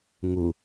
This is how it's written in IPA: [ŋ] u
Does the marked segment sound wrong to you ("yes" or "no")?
no